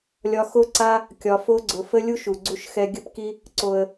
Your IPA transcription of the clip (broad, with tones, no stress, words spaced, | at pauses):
lʲɒ˧xo˦ǀa˦ | kʲɒ˧fo˦ɡ͡ǀʊ˧ fə˦lʲu˦ʃ u˨ɡ͡ǀu˧ʃxɛ˧ ɡʲə˦pki˦ | ǀo˧ə̯